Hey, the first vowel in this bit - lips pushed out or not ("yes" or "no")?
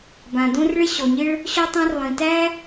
no